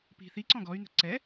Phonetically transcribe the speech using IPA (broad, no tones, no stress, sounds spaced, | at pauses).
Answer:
p i̤ θ i ǀ ɔ̃ ɡ ɔ y̯ n ə̤ ǀ ɛ